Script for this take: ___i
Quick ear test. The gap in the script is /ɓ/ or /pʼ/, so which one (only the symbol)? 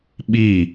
ɓ